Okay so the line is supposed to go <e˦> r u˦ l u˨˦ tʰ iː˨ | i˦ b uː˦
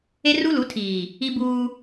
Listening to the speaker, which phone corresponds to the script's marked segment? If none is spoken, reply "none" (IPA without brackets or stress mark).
e˦